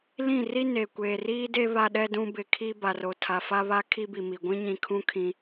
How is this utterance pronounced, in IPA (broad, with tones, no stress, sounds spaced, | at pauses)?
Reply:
l ĩ˦˨ r i˦ n e˨ kʷ eː˨ r iː˦ d e˦ β a˦ ɗ ɛ˦ d ũ˦ b ɪ˨ kʰ i˦ b a˨ r o˨ tʰ a˨ f a˦ β a˦ kʰ i˦ b i˨ m i˨ ɡʷ ĩ˦ ɲ ĩ˨ kʰ ũ˦ kʰ ĩ˦